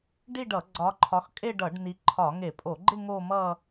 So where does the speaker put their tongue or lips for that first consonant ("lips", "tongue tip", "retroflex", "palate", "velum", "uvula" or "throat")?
retroflex